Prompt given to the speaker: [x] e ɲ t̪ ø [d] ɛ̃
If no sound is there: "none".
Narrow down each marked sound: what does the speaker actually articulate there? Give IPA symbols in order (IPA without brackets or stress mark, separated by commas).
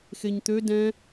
x, d